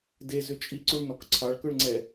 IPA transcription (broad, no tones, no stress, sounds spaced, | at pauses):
d e z ʏ t͡ʃʼ i ǀ u ɭ n ɔ k ǀʰ ɑ ɭ k ɵ ɭ ŋ͡ǀ ɛ